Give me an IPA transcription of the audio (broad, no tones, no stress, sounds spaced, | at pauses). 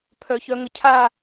pʰ œ ç œ ŋ ə cʰ a